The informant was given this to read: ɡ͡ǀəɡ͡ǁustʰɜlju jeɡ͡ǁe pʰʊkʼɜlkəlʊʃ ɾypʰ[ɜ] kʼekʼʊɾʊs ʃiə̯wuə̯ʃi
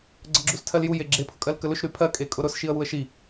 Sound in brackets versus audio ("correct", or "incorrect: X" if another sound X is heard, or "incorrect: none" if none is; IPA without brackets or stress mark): correct